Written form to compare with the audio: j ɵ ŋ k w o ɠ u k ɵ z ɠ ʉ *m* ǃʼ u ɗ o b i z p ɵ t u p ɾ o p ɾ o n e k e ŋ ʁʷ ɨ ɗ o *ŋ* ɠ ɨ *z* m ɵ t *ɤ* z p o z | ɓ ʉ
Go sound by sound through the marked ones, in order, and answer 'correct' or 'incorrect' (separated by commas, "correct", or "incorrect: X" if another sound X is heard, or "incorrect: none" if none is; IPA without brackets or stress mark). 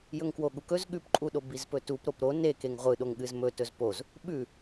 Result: incorrect: p, correct, correct, incorrect: ɵ